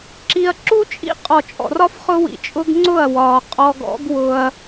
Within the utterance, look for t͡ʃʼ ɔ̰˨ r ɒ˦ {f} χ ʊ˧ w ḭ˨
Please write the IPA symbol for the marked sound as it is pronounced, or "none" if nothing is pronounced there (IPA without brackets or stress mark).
f